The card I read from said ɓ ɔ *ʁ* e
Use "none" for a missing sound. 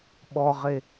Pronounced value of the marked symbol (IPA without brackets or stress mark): ʁ